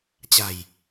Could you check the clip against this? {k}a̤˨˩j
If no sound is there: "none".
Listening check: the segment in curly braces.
t͡ɕ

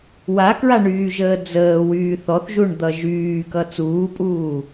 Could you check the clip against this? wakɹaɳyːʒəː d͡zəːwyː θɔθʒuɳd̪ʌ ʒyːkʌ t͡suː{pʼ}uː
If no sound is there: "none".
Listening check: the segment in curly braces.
pʼ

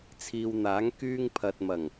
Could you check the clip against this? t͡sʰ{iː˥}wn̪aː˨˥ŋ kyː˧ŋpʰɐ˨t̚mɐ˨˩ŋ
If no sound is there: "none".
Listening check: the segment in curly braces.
iː˨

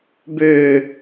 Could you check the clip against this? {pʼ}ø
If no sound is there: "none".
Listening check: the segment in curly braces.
b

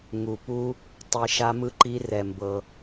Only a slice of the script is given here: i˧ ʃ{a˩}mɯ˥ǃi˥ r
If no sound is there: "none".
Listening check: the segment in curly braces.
a˥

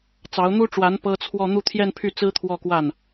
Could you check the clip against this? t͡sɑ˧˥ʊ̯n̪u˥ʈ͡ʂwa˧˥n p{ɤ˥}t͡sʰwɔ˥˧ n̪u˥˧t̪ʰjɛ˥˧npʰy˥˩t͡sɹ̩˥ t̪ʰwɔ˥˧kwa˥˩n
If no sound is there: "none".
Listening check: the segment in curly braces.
ɤ˥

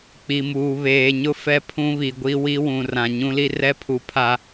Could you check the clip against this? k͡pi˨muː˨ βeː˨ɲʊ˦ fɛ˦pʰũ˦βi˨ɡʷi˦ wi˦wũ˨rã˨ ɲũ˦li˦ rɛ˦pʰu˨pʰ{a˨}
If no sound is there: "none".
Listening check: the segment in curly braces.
a˨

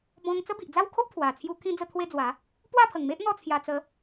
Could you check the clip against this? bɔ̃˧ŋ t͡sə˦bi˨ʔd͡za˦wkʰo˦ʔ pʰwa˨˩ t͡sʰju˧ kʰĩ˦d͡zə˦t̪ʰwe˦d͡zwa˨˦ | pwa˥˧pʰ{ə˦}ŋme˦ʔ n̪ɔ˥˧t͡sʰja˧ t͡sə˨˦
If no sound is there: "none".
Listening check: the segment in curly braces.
ə˨˩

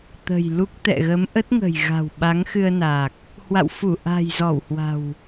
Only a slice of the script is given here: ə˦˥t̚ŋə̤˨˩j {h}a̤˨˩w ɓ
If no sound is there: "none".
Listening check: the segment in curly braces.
ɣ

